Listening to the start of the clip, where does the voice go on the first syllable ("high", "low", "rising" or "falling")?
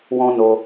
high